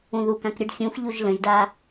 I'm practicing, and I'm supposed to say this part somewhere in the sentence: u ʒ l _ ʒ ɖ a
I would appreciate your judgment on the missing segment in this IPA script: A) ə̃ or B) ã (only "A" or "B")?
A